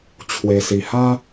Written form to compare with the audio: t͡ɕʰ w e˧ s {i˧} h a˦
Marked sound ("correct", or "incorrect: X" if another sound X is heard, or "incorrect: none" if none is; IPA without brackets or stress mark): correct